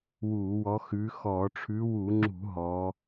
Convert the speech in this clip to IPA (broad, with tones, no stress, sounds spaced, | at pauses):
w uː˧˩˧ w ɔ˨˦ x ʉː˨˦ x ɔː˧˩˧ ʈ͡ʂʰ ʉ˨˦ w u˧˩˧ ŋ͡ǁ ṳ˧˩˧ ɦ ɔ˨˦